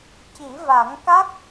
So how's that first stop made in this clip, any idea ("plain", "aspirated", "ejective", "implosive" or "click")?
plain